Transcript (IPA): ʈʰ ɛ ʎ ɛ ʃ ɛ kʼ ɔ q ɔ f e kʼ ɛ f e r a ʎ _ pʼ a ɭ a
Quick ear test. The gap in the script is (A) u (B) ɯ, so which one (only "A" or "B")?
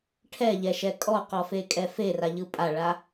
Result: B